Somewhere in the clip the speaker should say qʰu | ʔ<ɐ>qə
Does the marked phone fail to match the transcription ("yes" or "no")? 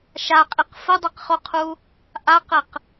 yes